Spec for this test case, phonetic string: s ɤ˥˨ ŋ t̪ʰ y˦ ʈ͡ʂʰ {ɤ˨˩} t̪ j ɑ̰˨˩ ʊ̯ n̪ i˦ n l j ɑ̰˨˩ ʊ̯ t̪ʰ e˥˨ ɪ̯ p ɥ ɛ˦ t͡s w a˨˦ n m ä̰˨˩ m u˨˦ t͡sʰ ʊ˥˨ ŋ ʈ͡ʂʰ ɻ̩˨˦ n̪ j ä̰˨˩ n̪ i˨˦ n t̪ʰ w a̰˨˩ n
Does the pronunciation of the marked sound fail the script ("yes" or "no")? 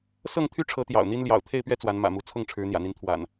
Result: yes